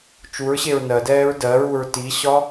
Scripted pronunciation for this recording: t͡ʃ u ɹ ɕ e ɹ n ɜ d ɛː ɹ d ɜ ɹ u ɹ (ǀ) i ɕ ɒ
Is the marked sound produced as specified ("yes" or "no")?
no